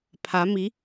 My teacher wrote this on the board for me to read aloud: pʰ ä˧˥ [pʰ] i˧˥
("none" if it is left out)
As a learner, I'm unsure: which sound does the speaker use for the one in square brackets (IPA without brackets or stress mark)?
m